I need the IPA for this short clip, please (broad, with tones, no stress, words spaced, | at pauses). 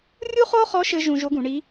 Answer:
rʲu˥χo˥χɔ˧˥ ʃɘ˥ʒũ˧ ʒo˧˥ɡũ˩˧ɳi˧˥